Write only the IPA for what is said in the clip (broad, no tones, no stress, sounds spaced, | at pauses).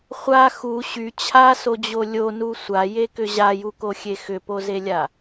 χʷ a x u ɕ y t͡ɕʰ a s o d͡ʑ o lʲ o n u sʷ a j e k ʏ ʑ a j u k o xʲ e x ʏ p o z e lʲ a